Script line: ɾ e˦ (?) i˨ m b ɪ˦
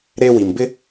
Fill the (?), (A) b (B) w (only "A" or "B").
B